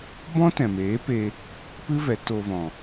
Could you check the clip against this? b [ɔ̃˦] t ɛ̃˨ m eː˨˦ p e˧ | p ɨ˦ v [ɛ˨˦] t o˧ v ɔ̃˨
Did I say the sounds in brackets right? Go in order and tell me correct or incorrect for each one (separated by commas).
correct, correct